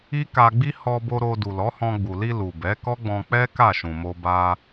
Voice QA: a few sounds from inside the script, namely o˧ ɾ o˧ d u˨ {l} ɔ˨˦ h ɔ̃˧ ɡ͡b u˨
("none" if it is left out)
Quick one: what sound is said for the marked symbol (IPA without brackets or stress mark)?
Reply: l